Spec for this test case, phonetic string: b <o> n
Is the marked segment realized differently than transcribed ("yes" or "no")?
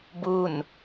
yes